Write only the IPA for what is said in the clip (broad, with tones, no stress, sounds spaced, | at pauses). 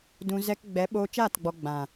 d ũ˧ z ɛ˧ k ɡ͡b ɛ˨˦ ɓ oː˧ t͡ʃ aː˦˨ t ɡ͡b ɔ˧ ɡ͡b ã˨